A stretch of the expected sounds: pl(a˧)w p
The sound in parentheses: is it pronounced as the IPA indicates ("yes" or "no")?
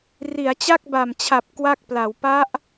no